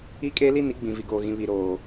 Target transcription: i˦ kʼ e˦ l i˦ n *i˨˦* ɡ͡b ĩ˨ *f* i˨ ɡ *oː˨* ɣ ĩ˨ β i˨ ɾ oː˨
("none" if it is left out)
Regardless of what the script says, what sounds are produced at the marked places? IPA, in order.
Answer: i˨˦, v, oː˨

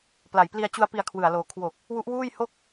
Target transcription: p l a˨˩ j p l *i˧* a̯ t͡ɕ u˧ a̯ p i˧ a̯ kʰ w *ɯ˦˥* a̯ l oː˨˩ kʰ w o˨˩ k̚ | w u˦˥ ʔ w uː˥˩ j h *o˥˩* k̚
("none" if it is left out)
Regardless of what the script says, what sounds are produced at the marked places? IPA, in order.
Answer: i˧, ɯ˨˩, o˥˩

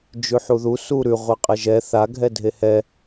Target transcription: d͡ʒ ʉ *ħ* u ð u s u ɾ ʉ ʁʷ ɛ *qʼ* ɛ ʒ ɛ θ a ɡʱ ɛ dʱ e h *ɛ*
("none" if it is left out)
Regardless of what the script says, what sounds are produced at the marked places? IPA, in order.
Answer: ħ, qʼ, ɛ

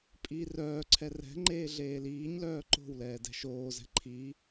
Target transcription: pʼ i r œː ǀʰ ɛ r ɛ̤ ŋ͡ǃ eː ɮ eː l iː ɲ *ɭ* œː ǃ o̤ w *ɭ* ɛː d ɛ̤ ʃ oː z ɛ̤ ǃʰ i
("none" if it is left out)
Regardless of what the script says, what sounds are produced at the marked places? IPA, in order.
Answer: l, l

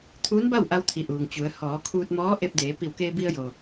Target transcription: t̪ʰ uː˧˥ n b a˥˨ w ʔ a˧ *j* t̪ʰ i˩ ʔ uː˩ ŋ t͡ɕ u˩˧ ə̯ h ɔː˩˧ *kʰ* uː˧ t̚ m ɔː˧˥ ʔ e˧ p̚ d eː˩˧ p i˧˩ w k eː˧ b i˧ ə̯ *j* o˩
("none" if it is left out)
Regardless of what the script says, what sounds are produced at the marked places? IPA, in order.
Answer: w, kʰ, j

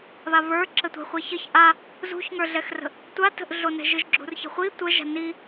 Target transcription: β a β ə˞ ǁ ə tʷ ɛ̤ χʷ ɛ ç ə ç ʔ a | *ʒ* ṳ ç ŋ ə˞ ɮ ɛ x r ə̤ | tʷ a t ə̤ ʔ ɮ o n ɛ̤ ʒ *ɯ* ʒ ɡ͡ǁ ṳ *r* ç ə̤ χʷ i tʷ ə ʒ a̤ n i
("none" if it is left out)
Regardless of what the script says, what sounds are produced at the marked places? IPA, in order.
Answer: z, ɯ, r

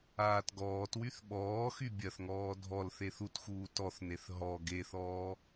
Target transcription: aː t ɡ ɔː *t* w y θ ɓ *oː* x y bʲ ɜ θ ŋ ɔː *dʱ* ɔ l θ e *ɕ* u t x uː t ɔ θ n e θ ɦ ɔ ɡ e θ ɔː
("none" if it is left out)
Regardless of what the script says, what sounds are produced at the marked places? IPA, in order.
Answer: t, ɔː, dʱ, θ

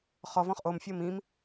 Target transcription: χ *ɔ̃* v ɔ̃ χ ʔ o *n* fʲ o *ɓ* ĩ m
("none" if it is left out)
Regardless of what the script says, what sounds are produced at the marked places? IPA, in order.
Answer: ɔ, m, m

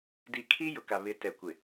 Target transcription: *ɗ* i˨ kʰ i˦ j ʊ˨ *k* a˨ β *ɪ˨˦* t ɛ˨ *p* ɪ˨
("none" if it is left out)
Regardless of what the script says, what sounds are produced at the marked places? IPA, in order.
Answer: d, k, ɪ˨˦, kʷ

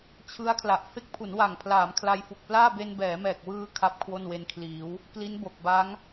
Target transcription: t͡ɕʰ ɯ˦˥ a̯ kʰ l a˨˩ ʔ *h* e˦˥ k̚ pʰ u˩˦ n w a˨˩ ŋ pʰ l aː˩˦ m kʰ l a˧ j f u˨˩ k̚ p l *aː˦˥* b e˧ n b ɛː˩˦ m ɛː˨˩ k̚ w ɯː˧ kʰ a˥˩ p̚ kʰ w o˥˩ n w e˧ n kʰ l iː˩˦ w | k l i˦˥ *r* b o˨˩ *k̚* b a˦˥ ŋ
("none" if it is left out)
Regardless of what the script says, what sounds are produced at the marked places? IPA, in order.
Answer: f, aː˥˩, n, k̚

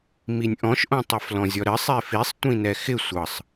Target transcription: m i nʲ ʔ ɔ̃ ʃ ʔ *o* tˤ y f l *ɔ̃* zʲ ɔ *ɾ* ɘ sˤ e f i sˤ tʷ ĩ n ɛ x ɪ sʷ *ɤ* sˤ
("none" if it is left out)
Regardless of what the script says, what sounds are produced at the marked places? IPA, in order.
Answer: õ, ɔ̃, ɾ, ɤ

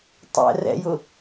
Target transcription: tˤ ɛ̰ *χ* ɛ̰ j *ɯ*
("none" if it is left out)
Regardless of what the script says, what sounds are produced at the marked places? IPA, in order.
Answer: r, ʊ

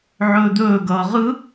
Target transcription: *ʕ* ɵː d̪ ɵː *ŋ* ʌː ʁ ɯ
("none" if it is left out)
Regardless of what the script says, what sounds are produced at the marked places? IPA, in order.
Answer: ʕ, ɡ

